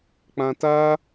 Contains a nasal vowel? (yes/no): yes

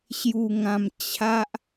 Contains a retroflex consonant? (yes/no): no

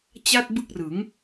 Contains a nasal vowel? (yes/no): no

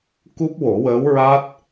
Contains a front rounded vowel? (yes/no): no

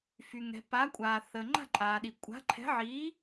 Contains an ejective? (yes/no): yes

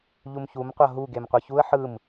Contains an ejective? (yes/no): no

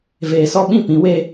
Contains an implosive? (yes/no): yes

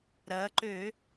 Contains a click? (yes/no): yes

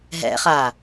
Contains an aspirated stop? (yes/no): no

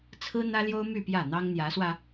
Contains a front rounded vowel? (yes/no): yes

